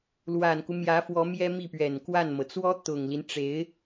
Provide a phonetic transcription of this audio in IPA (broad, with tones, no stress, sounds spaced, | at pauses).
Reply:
l w a˨˩ n k u˦ m j ä˧˥ f w ɔ˧˥ m j ɛ˥ m i˥˩ p ɥ ɛ˨˩ n k w a˥˩ n m ɤ˩ t͡s w ɔ˥ t̪ ʊ˨˩ ŋ l i˦ n ʈ͡ʂ e˧˥ ɪ̯